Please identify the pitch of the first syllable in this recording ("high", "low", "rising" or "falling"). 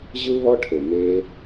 high